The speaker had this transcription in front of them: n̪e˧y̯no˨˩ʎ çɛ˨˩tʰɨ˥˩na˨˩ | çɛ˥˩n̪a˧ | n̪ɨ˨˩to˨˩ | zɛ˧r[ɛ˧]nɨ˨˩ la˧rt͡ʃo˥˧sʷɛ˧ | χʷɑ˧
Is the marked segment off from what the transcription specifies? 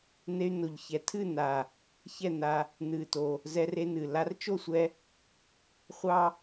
yes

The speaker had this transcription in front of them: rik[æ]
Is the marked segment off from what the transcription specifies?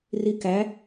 no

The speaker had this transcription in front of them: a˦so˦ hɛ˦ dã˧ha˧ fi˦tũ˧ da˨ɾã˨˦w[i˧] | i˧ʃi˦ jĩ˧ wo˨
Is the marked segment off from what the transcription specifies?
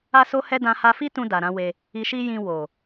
yes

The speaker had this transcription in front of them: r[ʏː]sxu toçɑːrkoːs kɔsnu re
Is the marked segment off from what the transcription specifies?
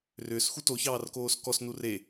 no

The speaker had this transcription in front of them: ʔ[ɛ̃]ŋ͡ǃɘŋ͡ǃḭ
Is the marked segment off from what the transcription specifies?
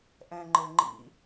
no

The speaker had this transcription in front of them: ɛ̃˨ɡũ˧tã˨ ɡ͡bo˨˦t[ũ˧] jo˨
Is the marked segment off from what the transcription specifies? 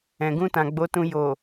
no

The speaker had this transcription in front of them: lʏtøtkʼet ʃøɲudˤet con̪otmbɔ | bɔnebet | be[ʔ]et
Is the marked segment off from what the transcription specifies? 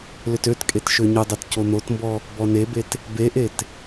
no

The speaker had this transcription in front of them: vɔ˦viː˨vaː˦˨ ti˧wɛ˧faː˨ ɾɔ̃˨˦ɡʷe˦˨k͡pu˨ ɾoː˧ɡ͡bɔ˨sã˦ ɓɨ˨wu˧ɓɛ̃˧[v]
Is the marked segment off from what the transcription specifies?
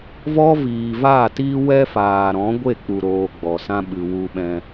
yes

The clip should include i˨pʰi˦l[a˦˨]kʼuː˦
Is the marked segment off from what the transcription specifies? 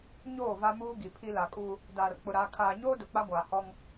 yes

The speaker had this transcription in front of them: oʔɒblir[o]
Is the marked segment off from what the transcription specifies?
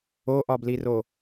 no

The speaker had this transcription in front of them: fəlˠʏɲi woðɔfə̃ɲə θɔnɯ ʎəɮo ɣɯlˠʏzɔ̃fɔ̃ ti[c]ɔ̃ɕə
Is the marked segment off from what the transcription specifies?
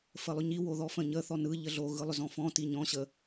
yes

